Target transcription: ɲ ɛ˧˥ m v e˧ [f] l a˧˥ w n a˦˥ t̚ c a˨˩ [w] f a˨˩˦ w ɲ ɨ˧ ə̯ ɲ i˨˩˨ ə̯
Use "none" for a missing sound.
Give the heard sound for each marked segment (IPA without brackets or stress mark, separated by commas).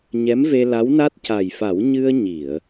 none, j